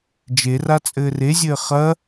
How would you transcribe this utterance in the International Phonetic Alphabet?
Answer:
d͡ʒerat͡sʼɘː rezʲɘː χɐ

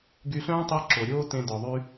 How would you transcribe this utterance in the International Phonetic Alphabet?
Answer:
ɡy˧ ɬœ̃ː˥tˤi˧ ǁo˩ɾʲoː˥tẽ˧ dɔ˩ðˤy˥

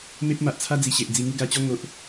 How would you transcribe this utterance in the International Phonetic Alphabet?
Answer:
me˦p̚ma˨ʔ t͡sʰa˦d͡zi˨˩ɕe˨ʔ d͡zi˧ŋu˦ ɡa˧t͡ɕɔ˦ ŋo˦ʔ

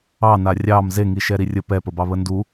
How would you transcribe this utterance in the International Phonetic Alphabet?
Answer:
ɑna rʲɑm zeŋi ʃɛɾirʲə pɛpəbɑ βəndu

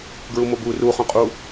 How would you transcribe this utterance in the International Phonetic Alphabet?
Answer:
ɡɹumobu ru χõqʼu

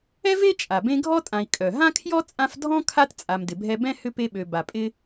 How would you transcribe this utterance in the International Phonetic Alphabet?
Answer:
ɛ˥ve˥t͡ʃʼa˩ bẽ˦ɡʱɔ˥tʼã˨i̯ kʼœ˩ ɦã˥kʰjɔ˥ t͡sʼã˦fdʱɔ̃˥ kʰa˥t t͡sʼa˨mdɪ˩bʱɛ˦ bɛ̃˥hʏ˦ pe˦ɓø˨ ba˨ pʼɪ˥

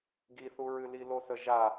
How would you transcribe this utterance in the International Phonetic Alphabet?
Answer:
ɡiθuɹɨli losəʒa

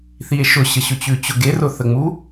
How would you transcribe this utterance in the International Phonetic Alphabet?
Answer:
θie̯ʃʊ ɕəɕʊt͡ɕʉt͡ɕʊ ɡerʊθəŋ͡mu

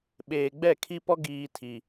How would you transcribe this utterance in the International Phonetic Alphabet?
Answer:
ɓeː˨ɡ͡bɛ˦˨kʰi˦pɔ˦ ɡiː˦tʰi˦

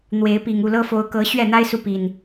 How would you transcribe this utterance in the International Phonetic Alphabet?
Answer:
n̪we˨˦ɪ̯pi˨˩ŋ u˥˨lɤ˦fo˨˦ʊ̯ kɤ˨˦ ɕɥɛ˥˨n̪a˦ɪ̯su˨ pi˨˩n

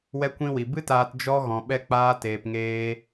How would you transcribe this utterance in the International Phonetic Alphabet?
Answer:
wɛ˧kʷĩ˧wi˨ bɨ˦taː˧t d͡ʒɔ˧ ɣɔ̃˨ ɓɛ˧k͡paː˧ teː˨pŋeː˧

